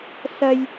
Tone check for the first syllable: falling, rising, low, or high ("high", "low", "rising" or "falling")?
high